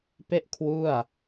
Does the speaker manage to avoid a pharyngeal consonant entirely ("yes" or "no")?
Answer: yes